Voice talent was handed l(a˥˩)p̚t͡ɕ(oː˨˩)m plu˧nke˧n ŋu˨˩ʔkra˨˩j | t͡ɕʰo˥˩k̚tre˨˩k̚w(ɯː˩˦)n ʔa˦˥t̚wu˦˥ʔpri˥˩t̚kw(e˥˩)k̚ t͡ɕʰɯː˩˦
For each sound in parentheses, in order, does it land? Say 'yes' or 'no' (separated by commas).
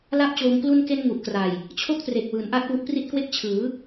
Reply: yes, no, yes, yes